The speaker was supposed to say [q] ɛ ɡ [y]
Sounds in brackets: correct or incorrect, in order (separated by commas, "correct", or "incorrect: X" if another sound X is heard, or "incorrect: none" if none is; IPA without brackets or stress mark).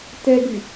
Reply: incorrect: t, correct